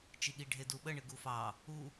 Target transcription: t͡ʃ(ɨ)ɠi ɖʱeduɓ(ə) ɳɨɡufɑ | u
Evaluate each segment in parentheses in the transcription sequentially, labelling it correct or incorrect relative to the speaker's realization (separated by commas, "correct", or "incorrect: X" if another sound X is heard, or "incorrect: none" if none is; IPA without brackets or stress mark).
incorrect: i, correct